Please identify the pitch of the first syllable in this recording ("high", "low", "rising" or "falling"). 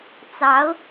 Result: rising